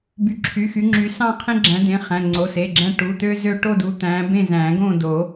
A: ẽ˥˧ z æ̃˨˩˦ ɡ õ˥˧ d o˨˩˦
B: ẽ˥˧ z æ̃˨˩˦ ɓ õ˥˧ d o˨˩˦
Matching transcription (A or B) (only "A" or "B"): A